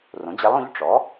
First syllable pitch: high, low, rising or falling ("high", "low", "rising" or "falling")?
rising